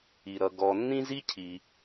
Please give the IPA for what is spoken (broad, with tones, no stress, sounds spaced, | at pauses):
i˩ ɾ ʌ˩ ɡ ɔ˩ nː ĩ˥ z i˥ cʰ i˩